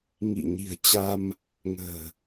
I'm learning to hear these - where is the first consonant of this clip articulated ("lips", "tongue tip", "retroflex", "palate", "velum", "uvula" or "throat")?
velum